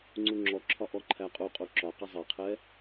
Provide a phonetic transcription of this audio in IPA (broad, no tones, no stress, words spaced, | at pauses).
ŋ͡ǀuŋ͡ǁɔǁʰɒ ʔɔǃʰæqʼuqʼu ǁɒqʌ zˤɛqʰɛ